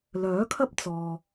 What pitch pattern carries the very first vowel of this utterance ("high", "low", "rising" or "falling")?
rising